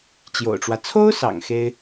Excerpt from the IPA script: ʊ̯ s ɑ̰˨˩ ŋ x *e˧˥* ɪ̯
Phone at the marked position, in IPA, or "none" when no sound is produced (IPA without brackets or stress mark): e˥